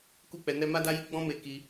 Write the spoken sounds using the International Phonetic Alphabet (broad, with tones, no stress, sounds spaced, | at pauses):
k u˦ k͡p ɛ˧ n ɛ˦ m a˦ d a˦ j i˦ ɡ͡b ɔ̃˦ m e˧ k i˧